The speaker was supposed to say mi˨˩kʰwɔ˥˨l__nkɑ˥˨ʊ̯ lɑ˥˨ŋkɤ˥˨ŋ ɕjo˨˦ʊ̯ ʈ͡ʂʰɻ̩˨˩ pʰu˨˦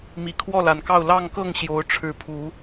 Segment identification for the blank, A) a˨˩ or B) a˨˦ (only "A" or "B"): A